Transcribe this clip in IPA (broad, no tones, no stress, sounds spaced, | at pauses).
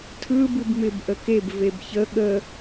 tʰ ɯ b ɯ b m ɪ b ʔ ə k e b v e b ç ə ɠ ə